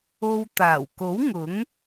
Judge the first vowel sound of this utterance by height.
mid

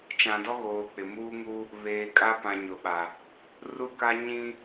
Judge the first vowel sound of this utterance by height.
low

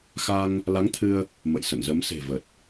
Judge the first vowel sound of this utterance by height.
low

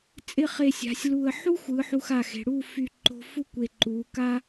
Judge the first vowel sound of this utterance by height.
high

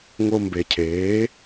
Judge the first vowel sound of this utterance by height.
mid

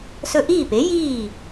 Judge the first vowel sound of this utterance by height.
mid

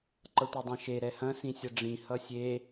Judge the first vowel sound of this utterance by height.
mid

